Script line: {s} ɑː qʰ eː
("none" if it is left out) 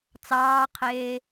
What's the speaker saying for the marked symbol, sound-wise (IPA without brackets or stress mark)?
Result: t͡s